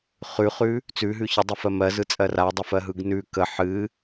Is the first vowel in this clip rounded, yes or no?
yes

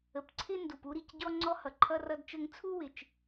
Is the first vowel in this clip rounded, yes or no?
no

